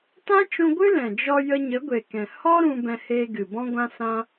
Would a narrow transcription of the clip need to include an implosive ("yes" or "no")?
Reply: no